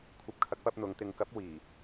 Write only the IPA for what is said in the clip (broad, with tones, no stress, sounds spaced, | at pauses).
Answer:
kʷʰ ɐ˧ p̚ kʰ ɐ˨˥ k̚ p ɐ˧ p̚ n̪ ʊ˨˧ ŋ t̪ ɪ˨˧ ŋ k ɐ˨˥ p̚ w iː˨˩